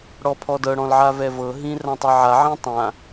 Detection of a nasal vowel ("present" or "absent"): present